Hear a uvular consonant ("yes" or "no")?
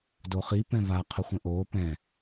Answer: yes